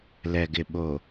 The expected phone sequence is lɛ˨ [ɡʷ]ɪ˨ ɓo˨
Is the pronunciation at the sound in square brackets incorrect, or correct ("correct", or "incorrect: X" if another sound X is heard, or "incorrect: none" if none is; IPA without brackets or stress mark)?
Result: incorrect: ɡ